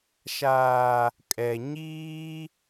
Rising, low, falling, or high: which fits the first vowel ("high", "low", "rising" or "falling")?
low